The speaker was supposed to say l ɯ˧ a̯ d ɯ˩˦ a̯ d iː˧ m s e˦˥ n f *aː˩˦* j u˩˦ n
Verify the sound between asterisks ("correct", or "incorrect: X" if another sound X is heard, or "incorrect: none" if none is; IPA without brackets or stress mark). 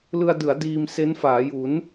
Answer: correct